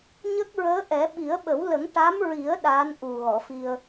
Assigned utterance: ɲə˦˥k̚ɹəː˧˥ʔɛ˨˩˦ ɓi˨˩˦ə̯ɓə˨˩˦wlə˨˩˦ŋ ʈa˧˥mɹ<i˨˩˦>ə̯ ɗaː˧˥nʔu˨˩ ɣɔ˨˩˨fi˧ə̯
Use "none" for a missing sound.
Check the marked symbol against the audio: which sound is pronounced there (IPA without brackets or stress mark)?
i˨˩˦